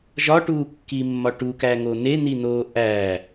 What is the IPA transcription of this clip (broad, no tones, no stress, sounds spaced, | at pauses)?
ʒ ɒ ʈ uː kː i mː ɒ ʈ u k æ ŋ o n̪ e n̪ i n̪ oː ʔ æː